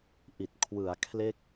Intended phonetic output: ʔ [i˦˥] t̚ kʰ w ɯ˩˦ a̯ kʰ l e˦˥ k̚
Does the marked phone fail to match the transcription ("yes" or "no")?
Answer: yes